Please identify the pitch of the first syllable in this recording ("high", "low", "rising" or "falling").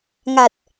low